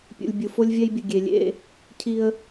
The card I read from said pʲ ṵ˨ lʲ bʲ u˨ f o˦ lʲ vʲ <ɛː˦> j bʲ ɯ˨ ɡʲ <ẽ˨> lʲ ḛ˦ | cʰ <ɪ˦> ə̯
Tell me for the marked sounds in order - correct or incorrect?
incorrect, incorrect, incorrect

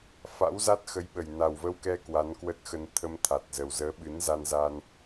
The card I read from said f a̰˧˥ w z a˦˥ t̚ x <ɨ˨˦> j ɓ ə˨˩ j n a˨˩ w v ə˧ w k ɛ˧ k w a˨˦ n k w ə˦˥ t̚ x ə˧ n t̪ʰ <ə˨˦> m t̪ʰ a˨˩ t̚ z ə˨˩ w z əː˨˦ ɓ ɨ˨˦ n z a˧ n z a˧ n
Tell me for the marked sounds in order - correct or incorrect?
incorrect, incorrect

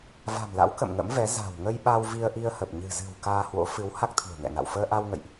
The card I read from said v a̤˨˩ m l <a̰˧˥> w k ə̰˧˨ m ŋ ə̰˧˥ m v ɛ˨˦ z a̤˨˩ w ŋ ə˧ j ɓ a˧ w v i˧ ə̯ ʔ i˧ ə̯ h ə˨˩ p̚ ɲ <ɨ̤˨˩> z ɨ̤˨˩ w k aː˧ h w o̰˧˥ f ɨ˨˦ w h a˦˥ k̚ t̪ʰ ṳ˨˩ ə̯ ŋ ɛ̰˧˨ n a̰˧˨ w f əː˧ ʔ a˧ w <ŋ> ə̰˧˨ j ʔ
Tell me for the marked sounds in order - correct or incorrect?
correct, correct, correct

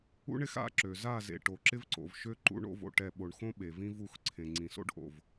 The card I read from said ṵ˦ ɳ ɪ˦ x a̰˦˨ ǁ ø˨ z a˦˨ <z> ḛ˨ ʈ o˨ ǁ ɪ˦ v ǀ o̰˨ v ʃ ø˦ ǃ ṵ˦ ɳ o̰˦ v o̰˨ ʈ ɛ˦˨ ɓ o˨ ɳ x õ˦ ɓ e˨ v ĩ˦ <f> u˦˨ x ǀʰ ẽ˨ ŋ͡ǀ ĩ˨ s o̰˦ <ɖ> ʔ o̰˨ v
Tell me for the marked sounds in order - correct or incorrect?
correct, incorrect, correct

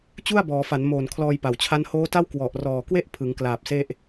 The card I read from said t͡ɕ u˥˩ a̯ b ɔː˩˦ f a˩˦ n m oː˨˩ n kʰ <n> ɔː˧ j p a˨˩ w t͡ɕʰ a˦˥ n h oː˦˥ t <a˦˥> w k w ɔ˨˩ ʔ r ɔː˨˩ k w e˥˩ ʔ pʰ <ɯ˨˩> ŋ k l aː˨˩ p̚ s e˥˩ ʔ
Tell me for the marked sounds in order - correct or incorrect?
incorrect, incorrect, incorrect

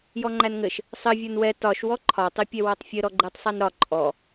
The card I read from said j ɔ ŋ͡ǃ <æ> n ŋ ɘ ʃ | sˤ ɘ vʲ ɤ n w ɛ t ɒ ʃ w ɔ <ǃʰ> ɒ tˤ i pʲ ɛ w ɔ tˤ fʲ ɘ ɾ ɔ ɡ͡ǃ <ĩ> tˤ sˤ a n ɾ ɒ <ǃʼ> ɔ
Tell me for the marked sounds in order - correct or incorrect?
correct, correct, incorrect, correct

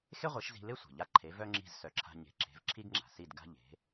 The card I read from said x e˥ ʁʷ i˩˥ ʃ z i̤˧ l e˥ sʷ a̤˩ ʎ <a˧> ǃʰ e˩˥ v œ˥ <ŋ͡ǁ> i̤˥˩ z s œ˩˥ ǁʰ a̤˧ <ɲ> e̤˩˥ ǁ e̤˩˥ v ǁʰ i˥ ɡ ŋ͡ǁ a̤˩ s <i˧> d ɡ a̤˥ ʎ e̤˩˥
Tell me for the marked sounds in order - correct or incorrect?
correct, correct, correct, incorrect

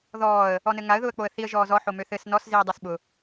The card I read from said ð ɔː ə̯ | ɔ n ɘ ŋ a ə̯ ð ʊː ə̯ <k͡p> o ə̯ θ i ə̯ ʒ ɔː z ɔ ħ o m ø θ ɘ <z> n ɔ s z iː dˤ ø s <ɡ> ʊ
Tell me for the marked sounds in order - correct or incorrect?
correct, incorrect, incorrect

